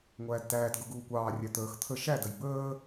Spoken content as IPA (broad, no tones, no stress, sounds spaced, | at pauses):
ŋʷ æː d t æː t ɡ ʊ ɡ uː kʷ ɑː rʲ æ t̪ əː x t̪ʰ ə ʃ æ d ə j b əː